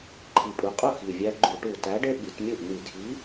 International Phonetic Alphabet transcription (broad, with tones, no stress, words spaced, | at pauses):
ǃʰi˨˩pʼu˨˩qʼu˥˩ xi˨˩vʲæ˦ ɡ͡ǃu˧˩˧ʈu˨˩ tæ˨˥ɖe˦ ɓi˩˧tmʲu˥˩ʔn̪i˧˩˧dʱi˨˥